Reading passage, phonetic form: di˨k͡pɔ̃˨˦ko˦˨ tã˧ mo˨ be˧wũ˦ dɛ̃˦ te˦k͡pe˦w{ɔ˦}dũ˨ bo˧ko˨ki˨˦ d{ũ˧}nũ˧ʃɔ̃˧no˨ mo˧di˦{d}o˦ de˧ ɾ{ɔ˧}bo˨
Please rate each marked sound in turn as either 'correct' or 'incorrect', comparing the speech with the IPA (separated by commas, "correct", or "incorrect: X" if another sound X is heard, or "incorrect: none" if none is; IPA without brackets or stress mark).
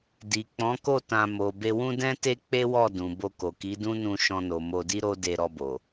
incorrect: ɔ˦˨, incorrect: ũ˦, incorrect: ɾ, correct